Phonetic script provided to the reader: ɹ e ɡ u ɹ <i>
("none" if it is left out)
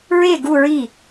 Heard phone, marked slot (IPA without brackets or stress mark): i